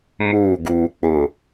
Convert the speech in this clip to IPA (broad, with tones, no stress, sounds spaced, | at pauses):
m uː˦˨ ɡ uː˨ k͡p ʊ˨